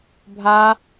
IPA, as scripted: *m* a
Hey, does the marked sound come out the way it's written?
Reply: no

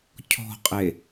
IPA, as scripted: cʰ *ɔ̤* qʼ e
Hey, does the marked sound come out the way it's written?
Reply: yes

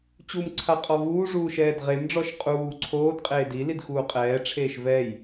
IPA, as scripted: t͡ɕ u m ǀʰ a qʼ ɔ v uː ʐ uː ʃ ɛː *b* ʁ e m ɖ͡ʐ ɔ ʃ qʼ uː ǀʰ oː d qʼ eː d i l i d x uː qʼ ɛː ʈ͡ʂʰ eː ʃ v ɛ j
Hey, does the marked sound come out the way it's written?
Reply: no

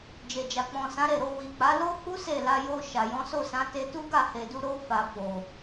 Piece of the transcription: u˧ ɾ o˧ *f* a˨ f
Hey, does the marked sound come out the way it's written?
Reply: yes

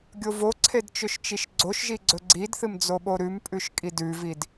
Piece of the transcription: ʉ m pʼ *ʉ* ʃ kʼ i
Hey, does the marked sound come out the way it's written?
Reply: yes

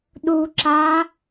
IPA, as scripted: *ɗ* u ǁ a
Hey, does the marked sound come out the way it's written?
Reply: yes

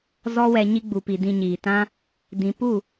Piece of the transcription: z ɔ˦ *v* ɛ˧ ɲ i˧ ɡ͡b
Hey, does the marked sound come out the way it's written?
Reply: no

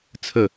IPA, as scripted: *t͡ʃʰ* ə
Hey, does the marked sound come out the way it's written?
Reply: no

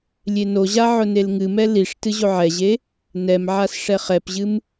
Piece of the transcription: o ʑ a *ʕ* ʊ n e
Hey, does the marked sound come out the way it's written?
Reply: yes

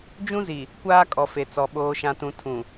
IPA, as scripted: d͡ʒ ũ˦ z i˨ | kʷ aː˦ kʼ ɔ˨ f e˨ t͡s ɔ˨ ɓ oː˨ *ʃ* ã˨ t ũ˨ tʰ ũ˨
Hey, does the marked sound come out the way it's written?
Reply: yes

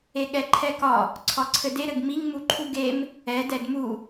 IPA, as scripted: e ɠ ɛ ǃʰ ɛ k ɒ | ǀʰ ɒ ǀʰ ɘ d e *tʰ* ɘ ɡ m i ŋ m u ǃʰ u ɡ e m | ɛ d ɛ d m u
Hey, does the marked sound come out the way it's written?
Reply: no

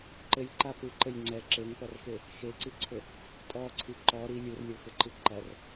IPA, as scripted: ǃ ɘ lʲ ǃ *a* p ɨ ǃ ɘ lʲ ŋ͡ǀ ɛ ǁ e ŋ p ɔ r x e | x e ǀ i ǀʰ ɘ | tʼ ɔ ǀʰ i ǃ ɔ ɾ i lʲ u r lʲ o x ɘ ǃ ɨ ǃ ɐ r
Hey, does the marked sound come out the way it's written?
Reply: yes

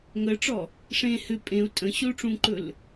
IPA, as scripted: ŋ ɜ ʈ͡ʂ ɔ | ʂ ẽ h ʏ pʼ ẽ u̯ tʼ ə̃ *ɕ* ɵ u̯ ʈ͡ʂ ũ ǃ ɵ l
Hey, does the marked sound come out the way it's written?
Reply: yes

